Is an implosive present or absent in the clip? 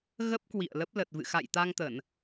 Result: absent